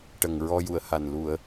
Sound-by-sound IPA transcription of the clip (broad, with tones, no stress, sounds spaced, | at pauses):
ʈ ə˨˩ ŋ ɹ ɔ˧ j u˨˩˨ ə̯ h a˨˩ n l u˨˩˨ ə̯